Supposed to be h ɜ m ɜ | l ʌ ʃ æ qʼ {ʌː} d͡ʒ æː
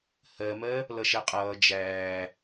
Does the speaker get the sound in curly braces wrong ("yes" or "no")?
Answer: no